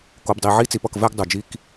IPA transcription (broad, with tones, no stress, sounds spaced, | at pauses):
k o˨ b dˤ i˨ ʕ i˦ t͡s i˨ p ʌ˦˨ k v ɛ˦ ɡ dˤ u˨ d͡ʒ i˦ k